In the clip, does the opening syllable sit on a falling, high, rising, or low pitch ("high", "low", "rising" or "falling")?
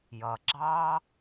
low